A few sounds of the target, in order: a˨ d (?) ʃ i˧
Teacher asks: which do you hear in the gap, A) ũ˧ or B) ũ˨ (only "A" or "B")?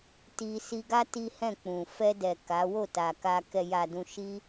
B